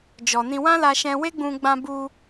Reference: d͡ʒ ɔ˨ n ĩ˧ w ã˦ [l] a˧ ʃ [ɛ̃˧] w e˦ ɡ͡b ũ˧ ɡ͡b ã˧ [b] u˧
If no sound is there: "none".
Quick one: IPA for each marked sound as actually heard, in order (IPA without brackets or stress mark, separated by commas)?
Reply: l, ɛ̃˧, b